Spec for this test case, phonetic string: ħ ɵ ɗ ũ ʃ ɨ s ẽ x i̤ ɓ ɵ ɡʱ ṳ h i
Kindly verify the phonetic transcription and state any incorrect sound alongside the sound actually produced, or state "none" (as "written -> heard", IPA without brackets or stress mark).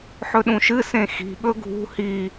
none